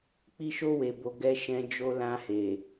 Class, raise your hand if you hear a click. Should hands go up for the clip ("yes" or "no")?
no